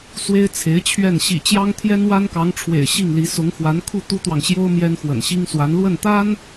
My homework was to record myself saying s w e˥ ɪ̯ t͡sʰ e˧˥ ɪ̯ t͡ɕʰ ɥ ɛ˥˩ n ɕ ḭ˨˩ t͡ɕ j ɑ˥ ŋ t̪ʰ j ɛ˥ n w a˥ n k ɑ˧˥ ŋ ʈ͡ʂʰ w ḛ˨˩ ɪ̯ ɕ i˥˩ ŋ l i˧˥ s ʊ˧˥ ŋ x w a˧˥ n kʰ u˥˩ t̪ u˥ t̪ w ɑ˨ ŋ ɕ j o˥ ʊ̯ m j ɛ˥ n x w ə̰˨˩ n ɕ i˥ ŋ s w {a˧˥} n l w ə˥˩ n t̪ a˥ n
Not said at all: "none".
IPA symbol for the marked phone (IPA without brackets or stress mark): a˧˥